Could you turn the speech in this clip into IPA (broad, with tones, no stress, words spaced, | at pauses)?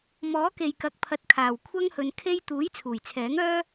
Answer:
mɔː˨˥ke˨jkɐ˨k̚pʰɐ˨˥t̚ kʰaː˨˩wkʷʰɐ˥ŋhɵ˨n kʰe˥j t̪uː˨˥j t͡sʰuː˨˩jt͡sʰɛː˨˥ŋœː˥